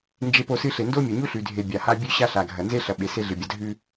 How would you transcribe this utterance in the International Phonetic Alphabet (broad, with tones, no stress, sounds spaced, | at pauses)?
n d͡ʒ e˦ p o˦ s ɨ˦ ɬ e˨ n d o˦ mʲ ɐ˨ ɲ u˦ ɬ ʉ˨ dʱ e˨ bʲ a˨ h a˦ bʲ ʉ˦ ɕ a˦ ɬ a˨ ɡʱ ɐ˨ n z e˦ ɬ ɐ˨ ɓ e˨ s e˦ ɮ ɨ˨ bʲ ɐ˨ dʱ ʉ˦